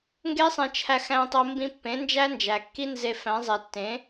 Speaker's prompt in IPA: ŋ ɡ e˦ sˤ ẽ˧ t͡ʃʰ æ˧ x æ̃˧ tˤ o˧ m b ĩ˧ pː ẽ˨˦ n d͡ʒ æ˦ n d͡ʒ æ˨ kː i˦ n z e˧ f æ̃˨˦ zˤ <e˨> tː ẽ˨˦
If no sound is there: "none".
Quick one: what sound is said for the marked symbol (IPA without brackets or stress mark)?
e˨